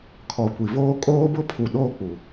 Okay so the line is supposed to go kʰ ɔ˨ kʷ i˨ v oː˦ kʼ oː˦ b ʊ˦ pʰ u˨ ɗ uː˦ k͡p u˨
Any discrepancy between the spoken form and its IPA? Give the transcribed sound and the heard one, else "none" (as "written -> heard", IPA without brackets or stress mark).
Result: uː˦ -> oː˦